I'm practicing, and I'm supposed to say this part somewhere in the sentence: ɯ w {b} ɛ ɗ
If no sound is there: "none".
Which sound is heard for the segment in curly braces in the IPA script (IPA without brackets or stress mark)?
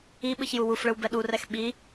b